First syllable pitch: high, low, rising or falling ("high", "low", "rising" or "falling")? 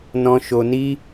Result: high